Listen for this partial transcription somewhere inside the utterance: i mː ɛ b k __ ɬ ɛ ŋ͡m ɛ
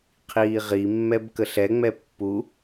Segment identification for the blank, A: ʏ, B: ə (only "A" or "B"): B